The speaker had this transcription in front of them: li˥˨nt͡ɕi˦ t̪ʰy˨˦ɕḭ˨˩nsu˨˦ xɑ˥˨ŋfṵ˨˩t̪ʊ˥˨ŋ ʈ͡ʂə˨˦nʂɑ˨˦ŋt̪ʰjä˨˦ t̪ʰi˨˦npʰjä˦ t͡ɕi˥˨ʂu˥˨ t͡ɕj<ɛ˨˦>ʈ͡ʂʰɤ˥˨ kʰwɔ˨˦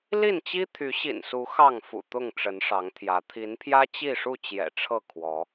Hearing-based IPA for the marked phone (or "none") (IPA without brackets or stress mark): ɛ̰˨˩